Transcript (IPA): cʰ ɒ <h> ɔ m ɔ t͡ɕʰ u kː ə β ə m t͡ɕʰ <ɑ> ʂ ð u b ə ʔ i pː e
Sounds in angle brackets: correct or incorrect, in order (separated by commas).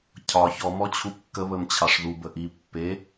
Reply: incorrect, correct